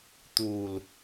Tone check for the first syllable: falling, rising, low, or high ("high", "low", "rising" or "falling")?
low